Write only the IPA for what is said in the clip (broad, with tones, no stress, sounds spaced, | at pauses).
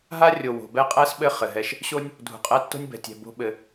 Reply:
ɦ a˦ rʲ o˨ w o̤˨ b ɛ˦ qʼ æ˦ s ɓ ɘ˦˨ χ ɘ˨ ɦ ɛ˦ ʃ | ɕ o˦ nʲ | dʱ ṳ˨ qʼ æ˦ tː o̤˦ nʲ b ɛ̤˨ tʲ ɛ̤˨ b o̤˦ ɓ ɘ˧